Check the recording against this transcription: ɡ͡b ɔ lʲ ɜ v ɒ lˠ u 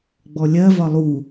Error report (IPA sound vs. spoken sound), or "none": none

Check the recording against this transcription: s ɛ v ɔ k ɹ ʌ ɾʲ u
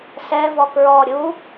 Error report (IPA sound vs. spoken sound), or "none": ʌ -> ɔ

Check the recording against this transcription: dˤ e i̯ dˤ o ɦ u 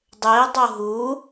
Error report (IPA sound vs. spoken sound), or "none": none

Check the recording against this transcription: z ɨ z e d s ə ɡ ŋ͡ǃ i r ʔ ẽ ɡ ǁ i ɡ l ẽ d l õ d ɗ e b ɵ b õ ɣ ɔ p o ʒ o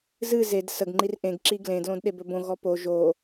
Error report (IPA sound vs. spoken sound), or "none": none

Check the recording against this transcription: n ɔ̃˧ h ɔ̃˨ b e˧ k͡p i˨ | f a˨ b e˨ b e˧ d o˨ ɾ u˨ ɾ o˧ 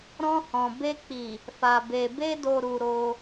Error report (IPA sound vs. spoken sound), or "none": n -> ɾ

